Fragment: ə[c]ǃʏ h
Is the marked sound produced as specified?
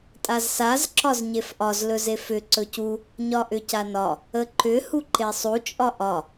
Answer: no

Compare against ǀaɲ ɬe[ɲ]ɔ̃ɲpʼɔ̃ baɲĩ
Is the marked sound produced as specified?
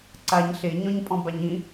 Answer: yes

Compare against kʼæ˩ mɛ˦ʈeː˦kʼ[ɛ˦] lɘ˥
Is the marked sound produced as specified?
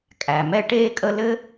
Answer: no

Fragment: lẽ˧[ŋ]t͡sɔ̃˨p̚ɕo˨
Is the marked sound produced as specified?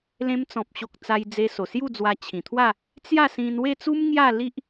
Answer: no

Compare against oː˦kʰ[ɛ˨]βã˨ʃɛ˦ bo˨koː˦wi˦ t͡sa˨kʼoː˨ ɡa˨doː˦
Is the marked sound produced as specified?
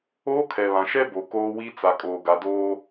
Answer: yes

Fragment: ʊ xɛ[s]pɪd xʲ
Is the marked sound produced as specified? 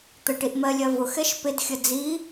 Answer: no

